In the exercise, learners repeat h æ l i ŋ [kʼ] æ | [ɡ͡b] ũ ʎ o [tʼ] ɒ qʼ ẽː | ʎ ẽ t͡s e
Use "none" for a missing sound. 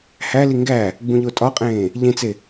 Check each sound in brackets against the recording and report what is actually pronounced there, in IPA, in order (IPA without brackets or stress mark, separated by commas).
ɡ, ɡ͡b, tʼ